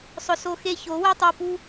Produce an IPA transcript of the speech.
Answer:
sˤ ʊ˨ s o˧ x e˧ ç o˨˦ w ɛ˦ tˤ o˨ p u˧

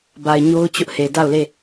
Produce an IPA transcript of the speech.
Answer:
b a˨ ɪ̯ ɲ o˦ ʊ̯ t͡ɕ ʊ˦ ʔ h e˨ d a˦˨ ʊ̯ l e˦˨

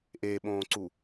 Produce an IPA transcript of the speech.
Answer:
ʔ e ɓ õː ǀ u

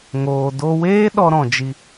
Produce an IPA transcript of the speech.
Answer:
ŋ oː˨ d o˧ w eː˦ ɗ ɔ˧ ɾ ɔ̃˨ d͡ʒ i˧

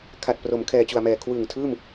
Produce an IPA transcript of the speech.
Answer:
kʰ a˨˩ t̚ p r o˩˦ m kʰ ɛː˨˩ t͡ɕ u˨˩ a̯ m ɛː˨˩ kʰ w ɯː˨˩ ŋ tʰ ɯː˥˩ m

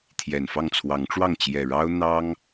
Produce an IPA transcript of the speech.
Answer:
t̪ʰ j ɛ˨˩ n f ɑ˥˨ ŋ t͡sʰ w ɑ˨˦ ŋ ʈ͡ʂ w ɑ˥˨ ŋ t͡ɕ j ɛ˨˩ ɻ ɑ˦ ʊ̯ n̪ ɑ˦ ŋ

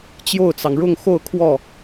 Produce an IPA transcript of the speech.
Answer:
t͡ɕ j o˥˩ ʊ̯ t͡s ɑ˩ ŋ ɻ ʊ˥˧ ŋ x o˥˧ ʊ̯ kʰ w ɔ˥˩

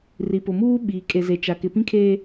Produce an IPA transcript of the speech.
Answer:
r i˨ p ʊ˨ m uː˦ ɓ iː˨ kʼ e˨ z e˨ t͡ʃ a˨ k ɪ˨ p ĩ˦ kʰ eː˦

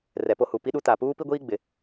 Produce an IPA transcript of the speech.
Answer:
r ɛ˨ p o˦ h u˨ p i˦ ɗ u˦ t a˨ p uː˦ p i˦ ɡʷ iː˦ ɡ͡b ɪ˨

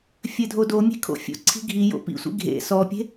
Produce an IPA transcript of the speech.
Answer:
fʲ ɘ dʱ o d o mʲ e̤ kʰ o̰ fʲ o̰ ǀʰ i̤ ɡʱ i j o̰ p ḭ sʷ ḭ ɡʱ ḛ s ɔ pʲ e̤

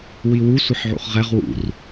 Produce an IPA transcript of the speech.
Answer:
w i w u sʷ ɘ ħ ʕ ṵ χ ʁ ɛ ʁ w ṵ r

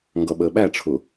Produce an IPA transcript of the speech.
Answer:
ŋ ɡ ʌ ɓ əː ɓ æ ʈ͡ʂʰ ʊ

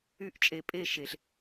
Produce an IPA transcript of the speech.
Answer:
y˧ ʔ t͡ʃʼ e˨ pʼ e˦˨ ʃ e˨ ɬ

